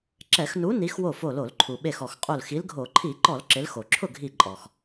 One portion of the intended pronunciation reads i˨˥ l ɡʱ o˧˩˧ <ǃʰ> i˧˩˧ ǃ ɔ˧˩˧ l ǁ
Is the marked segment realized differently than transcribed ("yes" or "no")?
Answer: no